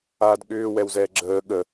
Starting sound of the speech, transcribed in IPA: aː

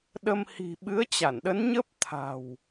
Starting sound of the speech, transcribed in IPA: ɗ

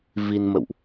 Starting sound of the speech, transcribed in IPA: v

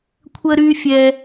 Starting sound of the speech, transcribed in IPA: kʷʰ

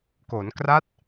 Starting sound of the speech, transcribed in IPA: k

